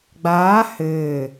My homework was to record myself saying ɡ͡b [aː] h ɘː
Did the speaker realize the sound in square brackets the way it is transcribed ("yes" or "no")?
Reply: yes